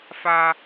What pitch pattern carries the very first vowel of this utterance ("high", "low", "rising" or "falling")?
high